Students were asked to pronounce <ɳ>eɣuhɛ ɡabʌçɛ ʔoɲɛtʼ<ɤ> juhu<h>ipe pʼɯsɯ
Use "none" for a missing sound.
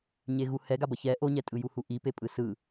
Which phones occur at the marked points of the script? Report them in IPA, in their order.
ɲ, ɯ, ʔ

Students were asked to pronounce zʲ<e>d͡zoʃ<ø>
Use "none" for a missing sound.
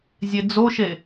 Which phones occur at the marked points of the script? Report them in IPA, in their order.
e, e

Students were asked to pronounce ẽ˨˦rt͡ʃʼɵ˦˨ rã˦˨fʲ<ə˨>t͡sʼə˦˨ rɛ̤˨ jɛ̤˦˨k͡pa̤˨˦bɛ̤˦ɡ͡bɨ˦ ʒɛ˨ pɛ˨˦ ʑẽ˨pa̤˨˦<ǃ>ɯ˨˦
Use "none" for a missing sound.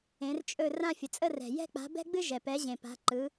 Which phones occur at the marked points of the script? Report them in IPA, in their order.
ə˨, ǃ

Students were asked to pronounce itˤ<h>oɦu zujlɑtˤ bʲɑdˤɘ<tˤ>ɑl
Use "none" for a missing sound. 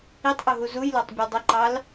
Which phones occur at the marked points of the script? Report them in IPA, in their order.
ʔ, ǃ

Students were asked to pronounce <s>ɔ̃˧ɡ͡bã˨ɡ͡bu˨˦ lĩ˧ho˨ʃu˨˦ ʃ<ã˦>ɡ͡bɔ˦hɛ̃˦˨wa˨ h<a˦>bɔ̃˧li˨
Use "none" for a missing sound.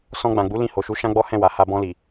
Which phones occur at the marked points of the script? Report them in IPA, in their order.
s, ã˦, a˧

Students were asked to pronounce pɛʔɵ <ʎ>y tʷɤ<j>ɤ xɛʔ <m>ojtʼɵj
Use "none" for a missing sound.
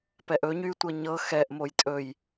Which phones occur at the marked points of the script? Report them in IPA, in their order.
ɲ, ɲ, m

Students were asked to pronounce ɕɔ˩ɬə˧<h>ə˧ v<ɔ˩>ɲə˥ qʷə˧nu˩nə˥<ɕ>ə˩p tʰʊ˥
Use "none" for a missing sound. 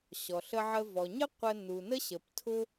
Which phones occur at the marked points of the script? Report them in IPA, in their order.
ʕ, ɔ˩, ɕ

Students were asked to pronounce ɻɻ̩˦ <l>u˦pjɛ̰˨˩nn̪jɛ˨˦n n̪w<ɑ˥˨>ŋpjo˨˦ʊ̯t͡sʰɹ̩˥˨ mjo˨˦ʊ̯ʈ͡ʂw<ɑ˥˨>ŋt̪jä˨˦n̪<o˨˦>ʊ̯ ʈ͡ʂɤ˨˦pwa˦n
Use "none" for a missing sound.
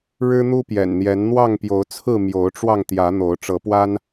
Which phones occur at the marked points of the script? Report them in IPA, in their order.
n̪, ɑ˥˨, ɑ˧, o˨˦

